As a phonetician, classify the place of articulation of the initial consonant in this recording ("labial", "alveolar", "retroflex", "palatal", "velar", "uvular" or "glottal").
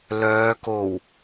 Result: alveolar